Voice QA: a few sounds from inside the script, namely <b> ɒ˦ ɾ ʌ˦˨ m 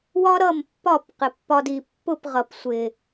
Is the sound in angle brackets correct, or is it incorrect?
incorrect